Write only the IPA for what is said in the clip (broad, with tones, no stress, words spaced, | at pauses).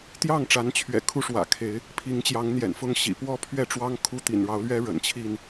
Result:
t̪jɑ˥˨ŋʈ͡ʂa˨˦nt͡ɕʰɥɛ̰˨˩ kʰu˦ʂwä̰˨˩ kʰe˨˦ɪ̯ | pʰi˨˦ŋt͡ɕjɑ˨˦ŋ n̪jɛ̰˨˩nfʊ˥˨ŋɕḭ˨˩ pwɔ˥˨ pʰɥɛ˥˨ʈ͡ʂwɑ˦ŋ kʰu˦t̪ḭ˨˩nɻɑ˨˦ʊ̯lɥɛ˦ ɻə̰˨˩n t͡ɕʰi˥˨n